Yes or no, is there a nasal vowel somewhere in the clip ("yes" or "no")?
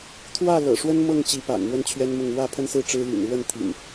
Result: no